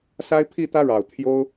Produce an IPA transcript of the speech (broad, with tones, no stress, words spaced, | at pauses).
sa˦ɪ̯pʰi˥˨t̪ä˦ɻɑ˨˩ʊ̯ t̪ʰjo˦ʊ̯